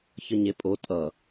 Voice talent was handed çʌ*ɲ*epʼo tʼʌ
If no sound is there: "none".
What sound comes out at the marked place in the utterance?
ɲ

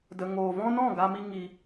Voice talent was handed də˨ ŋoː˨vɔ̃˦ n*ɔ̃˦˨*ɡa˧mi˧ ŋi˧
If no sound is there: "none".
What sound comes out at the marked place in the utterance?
ɔ̃˦˨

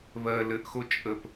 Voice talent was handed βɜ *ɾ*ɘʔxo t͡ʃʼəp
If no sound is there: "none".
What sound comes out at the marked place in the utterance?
l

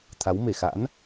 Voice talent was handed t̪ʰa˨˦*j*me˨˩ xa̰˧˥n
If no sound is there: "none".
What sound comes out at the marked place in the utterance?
w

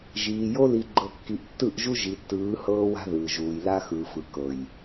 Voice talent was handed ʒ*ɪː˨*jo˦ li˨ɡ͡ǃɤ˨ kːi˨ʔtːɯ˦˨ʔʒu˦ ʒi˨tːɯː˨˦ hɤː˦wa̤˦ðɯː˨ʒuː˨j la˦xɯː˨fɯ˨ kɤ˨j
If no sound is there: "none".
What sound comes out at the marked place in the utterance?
iː˨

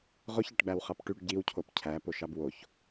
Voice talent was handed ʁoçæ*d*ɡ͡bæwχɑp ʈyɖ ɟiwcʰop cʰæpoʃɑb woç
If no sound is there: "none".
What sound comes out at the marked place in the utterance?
ʈ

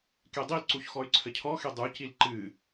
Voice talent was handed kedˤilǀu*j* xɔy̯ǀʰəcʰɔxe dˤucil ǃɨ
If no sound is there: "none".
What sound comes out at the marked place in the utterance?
ç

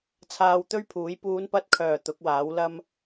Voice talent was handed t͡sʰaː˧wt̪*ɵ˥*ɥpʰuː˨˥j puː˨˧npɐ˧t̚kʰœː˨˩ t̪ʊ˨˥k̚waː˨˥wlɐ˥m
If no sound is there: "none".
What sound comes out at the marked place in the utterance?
ɵ˥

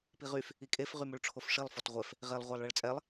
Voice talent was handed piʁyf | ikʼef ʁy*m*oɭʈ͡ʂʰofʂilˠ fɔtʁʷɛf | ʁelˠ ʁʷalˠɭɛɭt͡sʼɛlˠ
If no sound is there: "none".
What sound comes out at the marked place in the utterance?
m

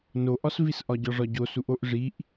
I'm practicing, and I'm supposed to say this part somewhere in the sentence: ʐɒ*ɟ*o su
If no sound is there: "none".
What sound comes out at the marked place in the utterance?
ɟ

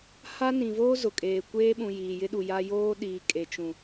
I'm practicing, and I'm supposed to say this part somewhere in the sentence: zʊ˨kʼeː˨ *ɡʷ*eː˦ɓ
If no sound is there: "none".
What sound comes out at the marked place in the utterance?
kʷ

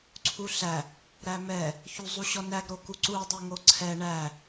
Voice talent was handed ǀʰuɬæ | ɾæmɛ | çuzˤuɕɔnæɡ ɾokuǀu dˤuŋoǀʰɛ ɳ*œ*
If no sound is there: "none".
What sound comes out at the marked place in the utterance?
æ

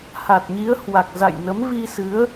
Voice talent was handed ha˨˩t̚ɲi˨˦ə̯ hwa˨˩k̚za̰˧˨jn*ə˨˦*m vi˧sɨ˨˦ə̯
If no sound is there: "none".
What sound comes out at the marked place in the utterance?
ə˨˦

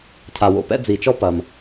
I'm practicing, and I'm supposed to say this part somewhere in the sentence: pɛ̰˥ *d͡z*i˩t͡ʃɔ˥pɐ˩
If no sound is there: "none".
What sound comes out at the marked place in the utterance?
d͡z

